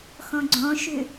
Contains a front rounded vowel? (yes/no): yes